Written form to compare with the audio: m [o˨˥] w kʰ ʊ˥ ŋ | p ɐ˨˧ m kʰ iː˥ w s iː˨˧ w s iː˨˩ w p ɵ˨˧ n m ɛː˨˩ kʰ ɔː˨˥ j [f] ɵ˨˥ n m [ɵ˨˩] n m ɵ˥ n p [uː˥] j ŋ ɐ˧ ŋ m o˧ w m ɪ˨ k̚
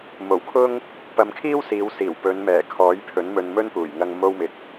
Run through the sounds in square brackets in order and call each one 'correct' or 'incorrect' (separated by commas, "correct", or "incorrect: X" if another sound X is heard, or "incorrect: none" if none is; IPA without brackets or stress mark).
incorrect: o˨˩, incorrect: pʰ, incorrect: ɵ˧, incorrect: uː˨˩